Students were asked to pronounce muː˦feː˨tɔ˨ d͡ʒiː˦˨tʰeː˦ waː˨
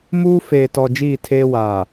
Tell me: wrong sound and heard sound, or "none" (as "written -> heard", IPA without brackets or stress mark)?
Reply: none